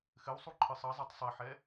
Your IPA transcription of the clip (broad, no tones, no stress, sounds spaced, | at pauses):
x ɘ w sˤ u ǃʰ ɨ sˤ ɐ zˤ i tˤ sˤ i ħ ɛ